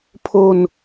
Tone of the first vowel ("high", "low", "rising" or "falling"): high